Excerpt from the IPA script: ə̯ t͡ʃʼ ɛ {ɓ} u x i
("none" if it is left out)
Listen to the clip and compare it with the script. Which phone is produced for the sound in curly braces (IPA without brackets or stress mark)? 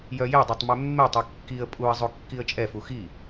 f